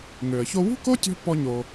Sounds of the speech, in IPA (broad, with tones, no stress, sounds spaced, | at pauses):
ŋ ø˩ ə̯ ç o˧ w ṳ˥ k o˥ tʲ ɔ̤˥ pː ɔ˧ ɲ o˩